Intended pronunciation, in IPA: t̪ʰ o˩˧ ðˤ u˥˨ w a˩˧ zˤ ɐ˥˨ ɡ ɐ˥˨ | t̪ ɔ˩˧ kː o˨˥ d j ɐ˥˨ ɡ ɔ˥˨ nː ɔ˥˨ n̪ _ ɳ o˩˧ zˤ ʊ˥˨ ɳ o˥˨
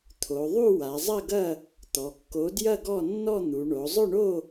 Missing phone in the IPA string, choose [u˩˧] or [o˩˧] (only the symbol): u˩˧